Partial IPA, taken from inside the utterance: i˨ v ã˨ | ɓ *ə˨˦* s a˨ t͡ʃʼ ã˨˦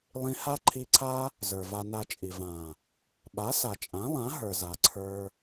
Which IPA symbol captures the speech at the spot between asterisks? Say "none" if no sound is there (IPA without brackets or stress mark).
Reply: a˨˦